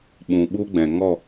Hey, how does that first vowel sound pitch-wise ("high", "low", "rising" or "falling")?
low